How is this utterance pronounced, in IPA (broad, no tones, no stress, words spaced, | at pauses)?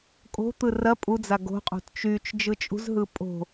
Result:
kʼo̤t̪ɯ rɐ pʼud͡za ɡo̤qʼo̤t t͡ʃyt͡ʃ d͡ʒɯt͡ʃʼṳzɦɯ pʼo̤